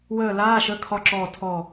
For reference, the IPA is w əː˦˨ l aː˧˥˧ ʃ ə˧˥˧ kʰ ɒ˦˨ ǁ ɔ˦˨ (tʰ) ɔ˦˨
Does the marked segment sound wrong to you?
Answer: no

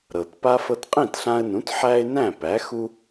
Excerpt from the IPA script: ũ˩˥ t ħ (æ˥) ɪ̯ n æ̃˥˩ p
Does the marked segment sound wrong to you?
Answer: no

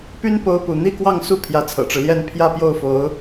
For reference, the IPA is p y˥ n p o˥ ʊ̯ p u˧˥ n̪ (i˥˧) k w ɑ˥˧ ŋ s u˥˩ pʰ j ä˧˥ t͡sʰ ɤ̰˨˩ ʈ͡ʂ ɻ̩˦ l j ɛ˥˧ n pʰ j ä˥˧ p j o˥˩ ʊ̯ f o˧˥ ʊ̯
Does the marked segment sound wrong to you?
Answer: no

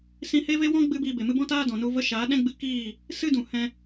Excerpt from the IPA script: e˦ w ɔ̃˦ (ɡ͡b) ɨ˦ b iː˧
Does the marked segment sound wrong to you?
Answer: no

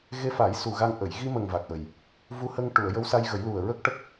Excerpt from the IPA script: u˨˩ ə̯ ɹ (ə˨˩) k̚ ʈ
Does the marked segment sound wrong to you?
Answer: yes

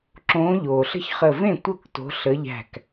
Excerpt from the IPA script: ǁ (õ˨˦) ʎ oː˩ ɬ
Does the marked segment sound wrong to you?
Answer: yes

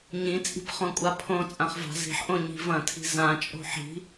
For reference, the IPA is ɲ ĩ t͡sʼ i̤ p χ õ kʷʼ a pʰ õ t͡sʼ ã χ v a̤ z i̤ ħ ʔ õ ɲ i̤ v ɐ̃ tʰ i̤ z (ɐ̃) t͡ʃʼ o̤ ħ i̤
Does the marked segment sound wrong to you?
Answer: yes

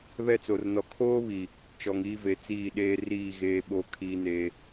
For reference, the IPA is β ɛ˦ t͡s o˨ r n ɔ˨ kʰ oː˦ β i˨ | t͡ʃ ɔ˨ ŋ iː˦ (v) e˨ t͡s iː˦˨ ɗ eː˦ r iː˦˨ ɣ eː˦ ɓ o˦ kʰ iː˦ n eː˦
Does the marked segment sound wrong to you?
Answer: no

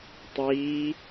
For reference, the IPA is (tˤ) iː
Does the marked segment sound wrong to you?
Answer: no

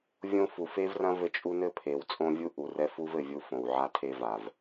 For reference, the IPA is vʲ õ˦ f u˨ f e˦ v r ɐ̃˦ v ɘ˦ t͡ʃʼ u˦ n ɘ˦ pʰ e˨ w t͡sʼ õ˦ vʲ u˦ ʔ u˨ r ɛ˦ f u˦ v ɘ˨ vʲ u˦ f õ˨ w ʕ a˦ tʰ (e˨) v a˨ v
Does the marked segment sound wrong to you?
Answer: yes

